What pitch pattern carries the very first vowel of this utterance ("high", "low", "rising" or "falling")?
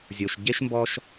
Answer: low